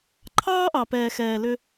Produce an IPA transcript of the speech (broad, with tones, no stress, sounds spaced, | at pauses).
ǃʰ ɑː˦ ʔ ɑ˨ p ɛː˨ x ɛː˨ l ʏ˦